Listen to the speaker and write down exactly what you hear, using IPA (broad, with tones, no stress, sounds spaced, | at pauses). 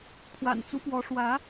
pʰ w a̰˨˩ n t͡s u˦ p w ɔ˨˦ ʂ w ä˨˦